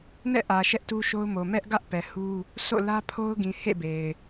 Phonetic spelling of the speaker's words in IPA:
nɛ̰˦˨ʔä˨ ʃɛ˦ʔtu˦ʃo˦ʊ̯ mo˨mɛ˦ʔɡä˦ʔ pɛ˨hu˦ | so̰˦˨lä˦pʰo˦ʊ̯ ɡĩ˨hḛ˦˨be˨ɪ̯

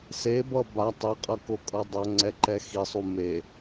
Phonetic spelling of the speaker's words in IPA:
sebʌ ba tˤɛqʼʌkokʼʌ dˤʌŋ͡ǀɛǃɛ xisˤu me

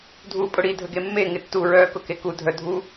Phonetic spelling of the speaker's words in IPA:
dʱuːpʼʊɽi dʱəɡemːe ŋɪtːu ɹœːkʊkeku dʱœdʱu

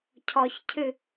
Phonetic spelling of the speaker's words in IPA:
cʰɔçcʰɨ

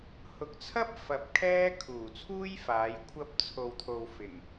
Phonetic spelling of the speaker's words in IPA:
hʊ˨k̚t͡sʰɐ˥p̚ fɐ˧p̚kʰɛː˥ kʰuː˨˩t͡sʰuː˥jfaː˨˧j kʷʰɐ˥p̚t͡sʰo˧wt̪ʰo˧w fɪ˨˩ŋ

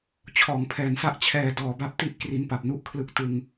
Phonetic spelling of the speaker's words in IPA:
t͡ɕʰɔː˩˦ŋpʰɛː˨˩nsa˥˩ʔ t͡ɕʰɛː˧ dɔː˩˦ba˦˥p̚ti˥˩ʔ kri˦˥npa˨˩p̚nu˥˩ʔkʰlɯ˥˩k̚ tɯ˧ŋ

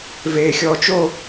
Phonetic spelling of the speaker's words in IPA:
veːxʲɔːt͡ʃo

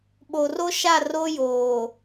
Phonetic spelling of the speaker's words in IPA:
ɓo˨ro˦ʃa˦˨ ro˦joː˨

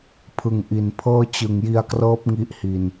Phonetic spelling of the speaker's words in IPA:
pʰɯ˨˩ŋʔi˨˩npʰɤː˥˩ t͡ɕɯ˨˩ŋji˧a̯krɤː˦˥p̚ ŋi˦˥ʔhi˧n

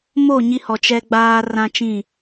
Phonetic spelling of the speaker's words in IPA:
moː˦˨ ɲi˦hɔ˨ t͡ʃɛ˦ ɡ͡baː˦ rã˦t͡ʃĩ˦˨

